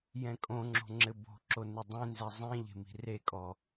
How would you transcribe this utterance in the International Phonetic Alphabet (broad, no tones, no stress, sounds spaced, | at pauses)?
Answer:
j ɛ̃ kʼ õ ŋ͡ǁ o̤ ŋ͡ǁ ɘ b o̤ ǁ o n ɨ dˤ ẽ n z ɛ zˤ ĩ ʎ e̤ m i̤ r e kʼ ɔ